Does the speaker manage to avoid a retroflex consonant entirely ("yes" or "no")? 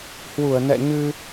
yes